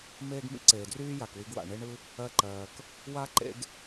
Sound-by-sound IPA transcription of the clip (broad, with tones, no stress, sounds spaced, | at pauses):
m eː˥ ɡ m ḭ˥ ǀ eː˩ d r yː˥ j a˩ k w i˧ ɡ w a̰˩ ɳ e˥ ɳ ɯ˥ | ɜ˧ ǃ ɜː˩ k | w a˥ ǃ ḛ˥ ɡ